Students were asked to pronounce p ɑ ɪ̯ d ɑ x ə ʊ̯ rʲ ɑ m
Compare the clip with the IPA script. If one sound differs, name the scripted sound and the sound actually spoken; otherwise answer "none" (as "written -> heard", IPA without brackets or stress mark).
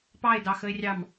ʊ̯ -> ɪ̯